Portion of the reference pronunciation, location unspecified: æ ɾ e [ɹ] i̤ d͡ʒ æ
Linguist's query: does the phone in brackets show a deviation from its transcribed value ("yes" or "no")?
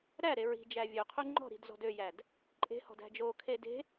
no